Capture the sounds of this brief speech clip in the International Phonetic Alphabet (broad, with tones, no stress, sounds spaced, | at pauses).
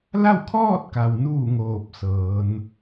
l a˥˨ w kʰ ɔː˥˨ t̚ k a˩ w n uː˧˩ ŋ oː˧˩ p̚ s ɤː˩˧ n